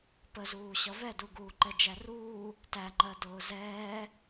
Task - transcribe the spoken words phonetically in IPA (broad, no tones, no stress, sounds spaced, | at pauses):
p ə z uː ɕ ʌ v ɛ d u ɡ uː ǃ ɛ d͡ʒ æ r uː | t æ ŋ͡ǃ ɜ d ʊː z ɛː